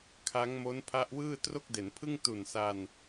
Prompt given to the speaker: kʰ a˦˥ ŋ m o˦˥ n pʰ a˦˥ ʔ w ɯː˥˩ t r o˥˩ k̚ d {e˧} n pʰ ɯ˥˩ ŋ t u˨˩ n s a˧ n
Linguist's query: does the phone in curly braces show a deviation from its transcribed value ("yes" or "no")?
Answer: yes